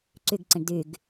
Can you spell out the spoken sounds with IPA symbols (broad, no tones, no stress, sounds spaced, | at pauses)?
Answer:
ǀ y ɡ ǀ ẽ ɳ d y ɡ